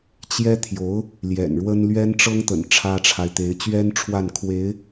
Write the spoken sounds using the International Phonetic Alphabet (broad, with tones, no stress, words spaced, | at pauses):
t͡ɕjɛ˥ t̪ʰjo˧˥ʊ̯ | ljɛ̰˨˩nɻwə˥n lɥɛ˥nʈ͡ʂɤ˥ŋt̪ə̰˨˩n ʈ͡ʂʰä˥ʈ͡ʂʰa˨ɪ̯t̪e˧˥ɪ̯ t͡ɕɥɛ˥n ʈ͡ʂʰwa˥˩nkʰwe˧˥ɪ̯